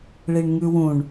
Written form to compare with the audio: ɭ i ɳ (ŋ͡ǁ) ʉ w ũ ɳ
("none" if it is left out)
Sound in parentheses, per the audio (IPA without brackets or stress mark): ŋ